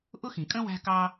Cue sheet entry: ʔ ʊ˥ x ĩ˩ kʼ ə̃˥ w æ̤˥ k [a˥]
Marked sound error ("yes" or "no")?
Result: yes